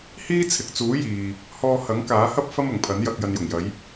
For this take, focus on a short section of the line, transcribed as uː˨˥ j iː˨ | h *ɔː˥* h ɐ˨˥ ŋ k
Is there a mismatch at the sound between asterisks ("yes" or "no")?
yes